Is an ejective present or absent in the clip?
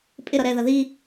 present